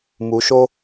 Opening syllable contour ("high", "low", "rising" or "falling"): rising